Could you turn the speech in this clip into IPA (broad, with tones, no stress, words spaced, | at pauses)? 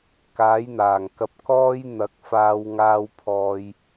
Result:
kaː˨˥jn̪aː˨˩ŋkɐ˧p̚ kɔː˥j n̪ɐ˨˥k̚faː˧w ŋaː˧wpʰɔː˧j